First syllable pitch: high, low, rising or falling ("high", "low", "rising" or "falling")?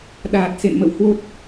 low